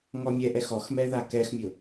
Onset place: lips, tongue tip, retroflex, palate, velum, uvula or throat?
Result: velum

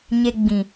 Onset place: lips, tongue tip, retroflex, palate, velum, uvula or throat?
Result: palate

